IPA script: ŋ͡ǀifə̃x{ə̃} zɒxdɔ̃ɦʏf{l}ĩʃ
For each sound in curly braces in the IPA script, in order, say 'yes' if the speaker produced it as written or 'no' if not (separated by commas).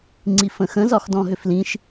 yes, yes